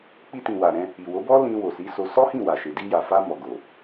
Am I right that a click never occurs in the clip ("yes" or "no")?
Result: yes